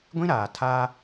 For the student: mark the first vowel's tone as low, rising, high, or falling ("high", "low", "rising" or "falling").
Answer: high